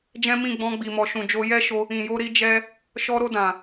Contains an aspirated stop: no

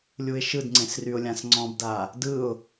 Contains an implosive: no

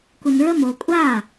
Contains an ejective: yes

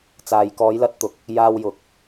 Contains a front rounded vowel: no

